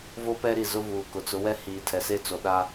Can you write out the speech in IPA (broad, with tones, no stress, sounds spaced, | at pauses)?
v o˦ p ɛ˦ ɾ i˨ z ʊ˦ v uː˨ k ʊ˨ t͡s ʊ˨˦ w ɛ˦ h iː˨ tʰ ɛ˨ s e˦˨ t͡s o˨ ɗ a˦